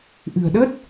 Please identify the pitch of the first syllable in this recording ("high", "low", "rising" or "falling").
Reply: low